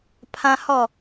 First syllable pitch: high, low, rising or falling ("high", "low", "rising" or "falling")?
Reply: high